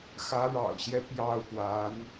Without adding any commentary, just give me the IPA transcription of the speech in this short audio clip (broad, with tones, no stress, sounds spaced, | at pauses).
x ä˧˥ ɻ ɑ̰˨˩ ʊ̯ ɕ j ɛ˦ p j ɑ˥˩ ʊ̯ p w a˧˥ n